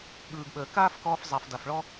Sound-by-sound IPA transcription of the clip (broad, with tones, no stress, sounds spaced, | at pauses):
ɠ ɯː˨ ɡ ɓ əː˨ k aː˦ f k ɔː˧ f zˤ a˨ f d a˨ f ɭ ɔ˦